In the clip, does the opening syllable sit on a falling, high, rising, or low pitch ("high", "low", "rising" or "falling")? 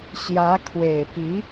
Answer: rising